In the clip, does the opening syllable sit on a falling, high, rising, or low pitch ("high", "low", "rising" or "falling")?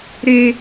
high